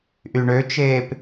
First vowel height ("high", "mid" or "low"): high